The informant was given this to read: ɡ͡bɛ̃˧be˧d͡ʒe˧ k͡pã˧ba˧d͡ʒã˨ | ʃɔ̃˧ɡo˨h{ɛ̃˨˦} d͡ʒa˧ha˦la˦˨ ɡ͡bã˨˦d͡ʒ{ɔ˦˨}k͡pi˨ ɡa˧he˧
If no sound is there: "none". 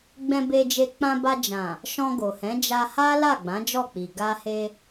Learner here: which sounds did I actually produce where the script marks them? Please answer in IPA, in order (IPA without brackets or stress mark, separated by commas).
ɛ̃˨˦, ɔ˦˨